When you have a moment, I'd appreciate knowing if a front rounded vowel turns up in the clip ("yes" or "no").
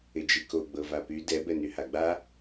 yes